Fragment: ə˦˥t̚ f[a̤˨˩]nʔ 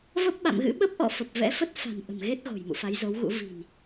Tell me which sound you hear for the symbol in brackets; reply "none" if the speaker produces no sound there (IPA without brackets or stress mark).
a̤˨˩